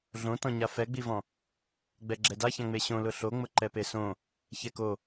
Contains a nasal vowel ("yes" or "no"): yes